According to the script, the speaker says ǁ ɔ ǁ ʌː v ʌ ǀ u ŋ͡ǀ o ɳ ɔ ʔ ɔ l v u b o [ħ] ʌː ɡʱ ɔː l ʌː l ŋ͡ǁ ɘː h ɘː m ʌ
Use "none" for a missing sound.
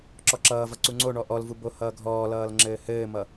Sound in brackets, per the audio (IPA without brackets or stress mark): h